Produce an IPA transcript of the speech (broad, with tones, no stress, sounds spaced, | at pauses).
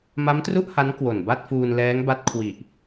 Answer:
m a˦˥ m t r u˥˩ ʔ h a˦˥ n k w o˨˩ n b a˥˩ t̚ f uː˧ n l ɛː˦˥ ŋ b a˦˥ t̚ kʰ w i˨˩ ʔ